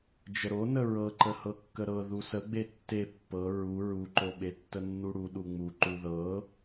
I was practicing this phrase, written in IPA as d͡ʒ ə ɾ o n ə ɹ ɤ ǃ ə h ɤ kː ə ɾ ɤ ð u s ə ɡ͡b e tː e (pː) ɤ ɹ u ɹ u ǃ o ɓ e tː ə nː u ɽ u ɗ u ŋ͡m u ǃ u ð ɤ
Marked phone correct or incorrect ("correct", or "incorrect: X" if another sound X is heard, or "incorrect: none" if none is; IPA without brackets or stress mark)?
correct